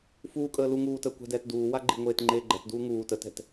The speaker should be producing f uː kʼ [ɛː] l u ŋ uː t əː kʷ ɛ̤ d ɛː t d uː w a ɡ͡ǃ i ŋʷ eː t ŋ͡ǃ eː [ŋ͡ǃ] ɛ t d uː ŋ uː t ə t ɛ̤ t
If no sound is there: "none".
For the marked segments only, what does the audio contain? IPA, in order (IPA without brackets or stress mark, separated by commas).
əː, ɡ͡ǃ